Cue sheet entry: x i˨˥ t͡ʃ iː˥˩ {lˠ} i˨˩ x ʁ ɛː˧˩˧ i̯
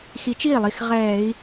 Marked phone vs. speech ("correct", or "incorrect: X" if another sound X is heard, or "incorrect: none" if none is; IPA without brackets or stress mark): correct